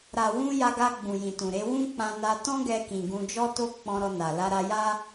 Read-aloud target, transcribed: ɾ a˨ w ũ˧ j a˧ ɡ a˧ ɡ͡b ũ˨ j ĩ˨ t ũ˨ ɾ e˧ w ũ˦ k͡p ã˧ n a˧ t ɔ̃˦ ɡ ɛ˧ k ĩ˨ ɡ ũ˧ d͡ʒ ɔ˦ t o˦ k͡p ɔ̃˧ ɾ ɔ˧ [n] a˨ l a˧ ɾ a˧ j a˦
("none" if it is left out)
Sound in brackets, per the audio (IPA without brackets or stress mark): n